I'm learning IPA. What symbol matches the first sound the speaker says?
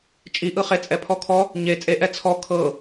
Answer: t͡ʃʼ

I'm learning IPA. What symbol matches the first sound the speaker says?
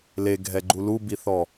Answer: l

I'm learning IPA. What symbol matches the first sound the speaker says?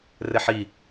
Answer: r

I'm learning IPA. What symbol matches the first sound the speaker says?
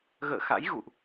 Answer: ɣ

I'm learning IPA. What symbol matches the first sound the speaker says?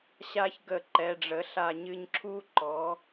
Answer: ɕ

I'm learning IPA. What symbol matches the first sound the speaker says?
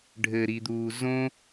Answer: ɖʱ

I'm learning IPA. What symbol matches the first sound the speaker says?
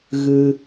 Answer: ɣ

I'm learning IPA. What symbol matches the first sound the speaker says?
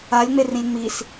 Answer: a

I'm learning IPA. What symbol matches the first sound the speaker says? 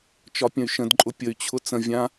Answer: t͡ʃ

